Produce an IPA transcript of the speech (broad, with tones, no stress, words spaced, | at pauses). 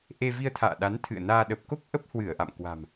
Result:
ʔe˧vi˧ə̯t̪ʰa̰ː˧˨ɗa˨˦n t̪ʰɨ̰˧˨ə̯naː˧ ɗə˨˩p̚ko˦˥k̚ ʔə˦˥p̚hwɨ˧˩ə̯ʔa̰˧˨m kwa̤˨˩m